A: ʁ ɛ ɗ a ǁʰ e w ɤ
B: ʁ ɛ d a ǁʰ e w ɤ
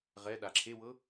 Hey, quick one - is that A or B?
A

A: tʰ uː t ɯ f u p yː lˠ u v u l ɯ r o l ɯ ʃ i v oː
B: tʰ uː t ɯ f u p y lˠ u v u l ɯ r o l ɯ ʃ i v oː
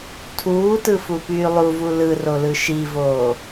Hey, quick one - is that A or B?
A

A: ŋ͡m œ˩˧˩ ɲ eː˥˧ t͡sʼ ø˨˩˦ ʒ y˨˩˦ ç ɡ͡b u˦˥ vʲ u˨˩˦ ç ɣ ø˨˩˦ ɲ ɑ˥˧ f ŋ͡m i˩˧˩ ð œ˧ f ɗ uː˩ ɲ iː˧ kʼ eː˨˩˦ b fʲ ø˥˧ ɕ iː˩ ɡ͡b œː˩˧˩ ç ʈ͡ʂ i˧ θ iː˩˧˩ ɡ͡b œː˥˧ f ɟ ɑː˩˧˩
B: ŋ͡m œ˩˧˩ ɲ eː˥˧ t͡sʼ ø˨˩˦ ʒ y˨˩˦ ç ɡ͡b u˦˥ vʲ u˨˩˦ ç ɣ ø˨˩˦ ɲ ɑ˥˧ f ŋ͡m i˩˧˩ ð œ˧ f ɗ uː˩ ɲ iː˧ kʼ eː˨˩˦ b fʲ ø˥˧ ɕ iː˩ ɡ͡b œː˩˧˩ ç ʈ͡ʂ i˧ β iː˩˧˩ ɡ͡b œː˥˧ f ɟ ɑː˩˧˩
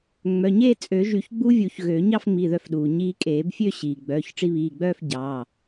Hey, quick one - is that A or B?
B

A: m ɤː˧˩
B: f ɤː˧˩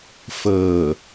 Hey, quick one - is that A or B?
B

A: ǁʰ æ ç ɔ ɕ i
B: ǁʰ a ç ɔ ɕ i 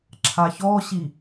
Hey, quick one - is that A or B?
B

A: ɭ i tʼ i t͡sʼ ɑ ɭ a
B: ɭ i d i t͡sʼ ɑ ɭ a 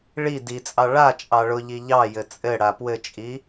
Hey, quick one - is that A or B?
B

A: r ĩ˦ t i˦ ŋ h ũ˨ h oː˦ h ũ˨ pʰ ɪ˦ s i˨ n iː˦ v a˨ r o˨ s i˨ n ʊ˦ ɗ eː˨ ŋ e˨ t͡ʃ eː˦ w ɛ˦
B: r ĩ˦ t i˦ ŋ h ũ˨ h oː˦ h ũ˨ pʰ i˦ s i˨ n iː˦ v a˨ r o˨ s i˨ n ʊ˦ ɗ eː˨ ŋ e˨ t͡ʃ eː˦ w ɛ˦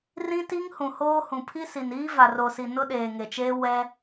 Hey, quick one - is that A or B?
B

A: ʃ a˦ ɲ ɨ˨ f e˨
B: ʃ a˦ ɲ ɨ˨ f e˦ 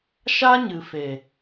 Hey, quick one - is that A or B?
A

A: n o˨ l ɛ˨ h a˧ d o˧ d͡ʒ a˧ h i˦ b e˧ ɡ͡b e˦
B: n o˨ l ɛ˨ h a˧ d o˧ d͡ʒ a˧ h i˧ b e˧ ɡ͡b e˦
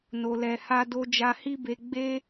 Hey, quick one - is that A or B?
A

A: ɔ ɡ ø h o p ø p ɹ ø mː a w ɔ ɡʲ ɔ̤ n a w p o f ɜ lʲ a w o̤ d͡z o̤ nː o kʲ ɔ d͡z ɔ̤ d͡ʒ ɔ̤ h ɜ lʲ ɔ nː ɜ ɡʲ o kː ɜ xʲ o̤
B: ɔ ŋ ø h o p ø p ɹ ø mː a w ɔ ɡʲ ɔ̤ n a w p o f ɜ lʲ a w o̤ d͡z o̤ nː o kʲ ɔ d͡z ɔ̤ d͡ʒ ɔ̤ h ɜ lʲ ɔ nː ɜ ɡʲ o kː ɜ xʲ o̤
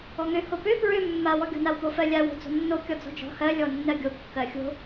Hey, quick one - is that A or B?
B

